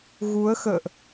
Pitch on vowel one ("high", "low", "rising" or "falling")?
rising